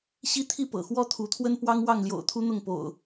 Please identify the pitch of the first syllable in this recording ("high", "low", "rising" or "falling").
high